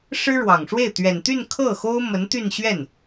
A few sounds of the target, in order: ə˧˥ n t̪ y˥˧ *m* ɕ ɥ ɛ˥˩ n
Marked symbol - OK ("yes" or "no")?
no